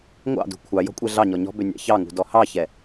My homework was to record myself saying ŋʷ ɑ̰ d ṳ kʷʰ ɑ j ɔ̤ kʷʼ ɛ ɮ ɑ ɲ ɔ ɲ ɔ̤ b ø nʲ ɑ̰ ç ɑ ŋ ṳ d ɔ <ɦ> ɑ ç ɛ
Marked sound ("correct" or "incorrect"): incorrect